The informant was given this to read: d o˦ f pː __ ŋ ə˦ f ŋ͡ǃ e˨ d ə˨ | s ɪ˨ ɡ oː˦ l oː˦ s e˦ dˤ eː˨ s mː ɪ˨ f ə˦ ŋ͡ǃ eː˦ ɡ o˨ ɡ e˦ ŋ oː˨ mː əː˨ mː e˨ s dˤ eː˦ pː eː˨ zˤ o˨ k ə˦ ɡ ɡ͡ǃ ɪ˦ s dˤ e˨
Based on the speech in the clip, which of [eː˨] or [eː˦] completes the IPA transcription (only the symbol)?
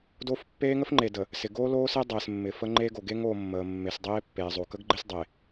eː˦